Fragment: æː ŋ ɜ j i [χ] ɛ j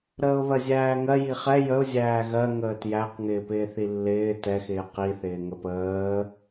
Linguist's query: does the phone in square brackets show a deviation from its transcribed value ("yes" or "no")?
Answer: no